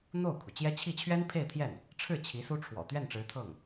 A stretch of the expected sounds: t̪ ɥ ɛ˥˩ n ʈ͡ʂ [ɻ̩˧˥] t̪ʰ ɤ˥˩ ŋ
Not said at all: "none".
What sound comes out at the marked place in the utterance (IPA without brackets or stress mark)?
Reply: ɻ̩˧˥